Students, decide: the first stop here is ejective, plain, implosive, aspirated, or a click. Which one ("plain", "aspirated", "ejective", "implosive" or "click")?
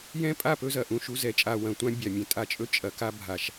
ejective